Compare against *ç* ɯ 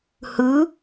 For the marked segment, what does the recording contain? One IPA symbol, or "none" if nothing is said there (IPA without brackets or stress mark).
h